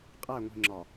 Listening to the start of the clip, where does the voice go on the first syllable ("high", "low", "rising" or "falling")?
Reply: falling